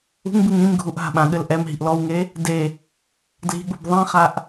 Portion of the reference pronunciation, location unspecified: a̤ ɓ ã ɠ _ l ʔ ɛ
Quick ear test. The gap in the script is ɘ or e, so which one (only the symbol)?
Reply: ɘ